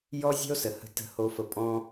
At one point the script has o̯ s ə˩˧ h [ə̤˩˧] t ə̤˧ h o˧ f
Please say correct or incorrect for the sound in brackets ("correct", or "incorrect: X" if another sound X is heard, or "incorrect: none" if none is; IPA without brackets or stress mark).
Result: incorrect: ə̤˧